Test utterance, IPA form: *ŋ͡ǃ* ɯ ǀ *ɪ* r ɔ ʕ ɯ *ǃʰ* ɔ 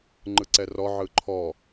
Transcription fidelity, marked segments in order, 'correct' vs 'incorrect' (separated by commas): correct, incorrect, correct